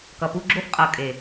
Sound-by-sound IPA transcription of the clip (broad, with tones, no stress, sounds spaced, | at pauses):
k ʌ˨ p u˦ ɡ͡ǁ o˦ f qʼ ʌ˨ kʼ e˨